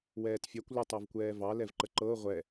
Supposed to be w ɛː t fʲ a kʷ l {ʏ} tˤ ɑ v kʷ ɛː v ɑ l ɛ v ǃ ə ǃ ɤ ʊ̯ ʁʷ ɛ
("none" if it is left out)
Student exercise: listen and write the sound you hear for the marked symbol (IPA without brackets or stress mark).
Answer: ʏ